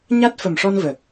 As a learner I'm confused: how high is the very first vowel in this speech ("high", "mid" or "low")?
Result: low